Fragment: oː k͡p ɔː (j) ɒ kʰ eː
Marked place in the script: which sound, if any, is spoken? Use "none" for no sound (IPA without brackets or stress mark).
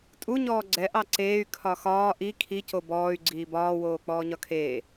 ɲ